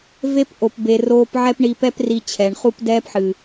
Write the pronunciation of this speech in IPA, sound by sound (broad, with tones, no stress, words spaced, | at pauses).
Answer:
ve˦pʔo˨pbe˨ roː˧pʕɛ˦pɳi˧pɛ˦p ri˧t͡ɕʰɛ˨ɳχu˦p dɛː˦pħɨ˨